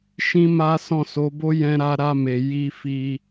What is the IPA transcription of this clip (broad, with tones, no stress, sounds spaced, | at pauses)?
ʃ ĩ˦ m a˦ s ɔ̃˦˨ s o˨˦ b o˦ j ɛ̃˧ ɾ a˧ ɾ a˧ m e˨ j i˧ f i˧